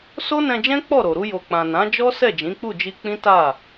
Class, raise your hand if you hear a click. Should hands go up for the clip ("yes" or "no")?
no